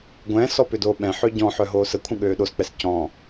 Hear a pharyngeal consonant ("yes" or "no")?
yes